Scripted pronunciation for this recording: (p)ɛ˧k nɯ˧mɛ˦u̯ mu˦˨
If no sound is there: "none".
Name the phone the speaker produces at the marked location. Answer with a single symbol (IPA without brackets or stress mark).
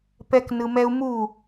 p